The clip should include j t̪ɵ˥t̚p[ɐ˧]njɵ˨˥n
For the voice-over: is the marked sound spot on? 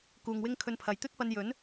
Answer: yes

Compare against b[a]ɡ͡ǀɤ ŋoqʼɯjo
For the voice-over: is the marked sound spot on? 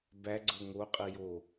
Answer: no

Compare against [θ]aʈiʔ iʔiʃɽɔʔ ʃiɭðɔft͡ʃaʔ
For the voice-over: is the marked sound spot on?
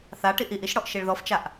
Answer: yes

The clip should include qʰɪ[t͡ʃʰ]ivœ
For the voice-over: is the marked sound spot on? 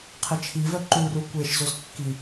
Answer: yes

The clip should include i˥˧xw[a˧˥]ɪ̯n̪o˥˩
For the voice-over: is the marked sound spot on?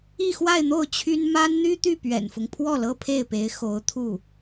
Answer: no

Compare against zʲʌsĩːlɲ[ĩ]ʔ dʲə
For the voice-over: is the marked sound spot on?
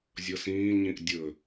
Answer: yes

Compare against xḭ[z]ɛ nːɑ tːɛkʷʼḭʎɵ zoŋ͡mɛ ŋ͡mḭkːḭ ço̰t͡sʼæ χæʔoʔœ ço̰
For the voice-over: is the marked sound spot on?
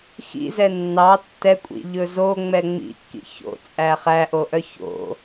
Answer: yes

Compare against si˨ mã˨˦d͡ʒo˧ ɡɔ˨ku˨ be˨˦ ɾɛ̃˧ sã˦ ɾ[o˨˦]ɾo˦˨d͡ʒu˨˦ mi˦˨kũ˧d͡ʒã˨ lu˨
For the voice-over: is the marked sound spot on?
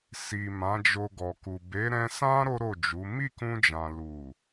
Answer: no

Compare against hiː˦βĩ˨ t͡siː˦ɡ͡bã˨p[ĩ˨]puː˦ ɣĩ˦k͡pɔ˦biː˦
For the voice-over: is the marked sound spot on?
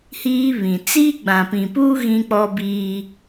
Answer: yes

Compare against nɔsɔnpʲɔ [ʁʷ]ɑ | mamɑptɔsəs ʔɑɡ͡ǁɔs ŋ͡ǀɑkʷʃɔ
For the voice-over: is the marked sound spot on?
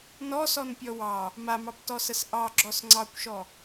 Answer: no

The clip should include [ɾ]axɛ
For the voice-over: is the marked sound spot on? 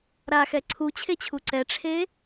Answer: yes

